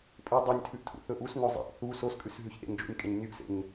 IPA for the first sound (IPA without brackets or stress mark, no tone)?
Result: pʼ